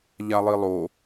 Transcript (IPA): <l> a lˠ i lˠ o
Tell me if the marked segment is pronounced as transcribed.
no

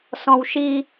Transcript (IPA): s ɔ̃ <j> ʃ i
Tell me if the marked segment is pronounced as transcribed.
no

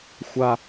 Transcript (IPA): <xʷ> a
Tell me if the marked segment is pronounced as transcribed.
yes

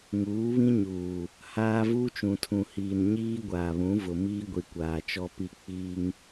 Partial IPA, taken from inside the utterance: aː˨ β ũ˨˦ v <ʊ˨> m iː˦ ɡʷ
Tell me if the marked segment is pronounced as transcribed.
yes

